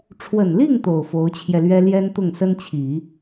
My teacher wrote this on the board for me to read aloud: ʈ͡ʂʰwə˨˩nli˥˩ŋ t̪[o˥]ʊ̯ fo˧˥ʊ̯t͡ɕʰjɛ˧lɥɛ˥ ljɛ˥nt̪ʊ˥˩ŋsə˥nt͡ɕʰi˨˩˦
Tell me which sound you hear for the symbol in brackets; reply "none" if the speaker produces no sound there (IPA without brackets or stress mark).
o˨˩